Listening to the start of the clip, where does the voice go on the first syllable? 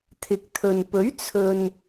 low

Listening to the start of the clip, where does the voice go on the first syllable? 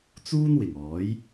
high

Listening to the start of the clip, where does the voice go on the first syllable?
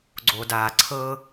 low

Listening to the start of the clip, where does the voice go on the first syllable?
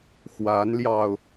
rising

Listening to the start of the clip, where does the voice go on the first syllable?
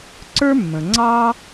high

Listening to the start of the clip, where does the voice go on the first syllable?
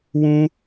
high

